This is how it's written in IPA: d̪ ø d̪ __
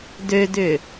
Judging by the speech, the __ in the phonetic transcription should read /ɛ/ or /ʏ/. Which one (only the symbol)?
ʏ